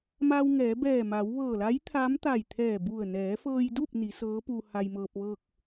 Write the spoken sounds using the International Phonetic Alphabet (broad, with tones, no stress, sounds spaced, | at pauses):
m aː˧ w ŋ ɛː˩˧ b ɛː˧˩ m aː˩˧ w ʋ ɤː˧˩ l a˧˥ j t̪ʰ a˧˥ m t̪ a˧˩ j t̪ʰ ɛː˧˩ b u˧˩ ə̯ n ɛː˩˧ f ɤː˧ j d u˥˨ p̚ n i˩˧ s ɤː˧˥ p u˧ h a˧ j m ɤː˧ p̚ ʋ ɤː˥˨ k̚